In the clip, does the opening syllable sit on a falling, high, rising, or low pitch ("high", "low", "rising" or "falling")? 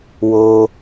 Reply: high